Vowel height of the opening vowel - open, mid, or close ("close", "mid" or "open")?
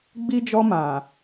close